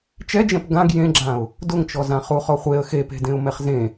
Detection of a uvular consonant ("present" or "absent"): present